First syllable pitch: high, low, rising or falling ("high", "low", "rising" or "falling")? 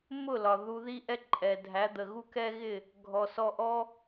falling